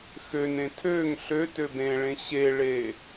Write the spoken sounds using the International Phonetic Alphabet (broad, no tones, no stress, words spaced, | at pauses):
xønẽ tʰøŋ ɬøtøb ẽɭẽ ɕeɭe